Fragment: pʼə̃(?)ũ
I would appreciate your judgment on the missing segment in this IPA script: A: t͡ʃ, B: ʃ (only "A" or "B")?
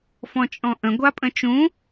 A